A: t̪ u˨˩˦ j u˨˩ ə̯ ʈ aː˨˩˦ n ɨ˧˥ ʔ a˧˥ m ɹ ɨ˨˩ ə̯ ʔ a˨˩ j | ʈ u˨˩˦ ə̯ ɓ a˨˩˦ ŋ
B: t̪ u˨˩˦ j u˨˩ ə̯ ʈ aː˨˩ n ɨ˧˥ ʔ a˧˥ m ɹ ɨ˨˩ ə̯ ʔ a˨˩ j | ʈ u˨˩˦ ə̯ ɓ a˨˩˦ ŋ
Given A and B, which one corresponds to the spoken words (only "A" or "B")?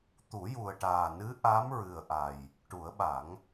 B